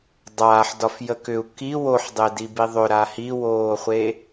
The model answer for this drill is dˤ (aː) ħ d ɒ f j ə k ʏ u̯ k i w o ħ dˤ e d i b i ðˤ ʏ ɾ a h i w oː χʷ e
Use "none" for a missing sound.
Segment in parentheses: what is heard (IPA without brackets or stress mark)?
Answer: aː